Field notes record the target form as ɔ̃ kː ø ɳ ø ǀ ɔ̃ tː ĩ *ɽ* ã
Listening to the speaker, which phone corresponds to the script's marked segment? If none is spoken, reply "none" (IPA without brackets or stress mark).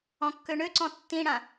ɽ